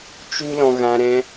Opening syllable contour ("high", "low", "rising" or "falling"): high